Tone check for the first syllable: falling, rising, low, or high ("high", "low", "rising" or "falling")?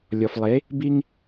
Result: low